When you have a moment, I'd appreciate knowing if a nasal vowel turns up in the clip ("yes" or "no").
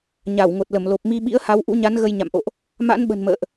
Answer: no